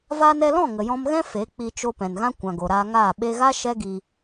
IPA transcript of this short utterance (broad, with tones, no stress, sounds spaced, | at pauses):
v aː˧ n ɛ˧ l ɔ̃˦˨ ŋ ə˨ j ɔ̃˧ m ɣ ɛ̃˦ f e˨˦ k͡p i˧ t͡ʃ o˧ p ɛ̃˨ n ɣ ã˦ kʷ ã˨ ɡ o˨ ɾ aː˧ ŋ aː˦˨ ɓ e˧ ɣ a˦ ʃ ɛ˦ ɡ i˧